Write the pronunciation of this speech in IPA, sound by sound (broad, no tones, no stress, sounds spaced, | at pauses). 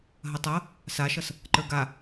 ɦ ɐ tˤ ʌ | s a ʃ ʌ s | ǃ ə˞ ɡ a